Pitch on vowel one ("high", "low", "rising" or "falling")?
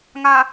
low